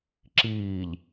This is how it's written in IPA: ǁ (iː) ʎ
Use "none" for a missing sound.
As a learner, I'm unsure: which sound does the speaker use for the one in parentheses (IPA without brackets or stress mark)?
iː